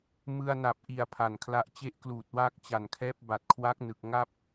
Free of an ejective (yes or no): yes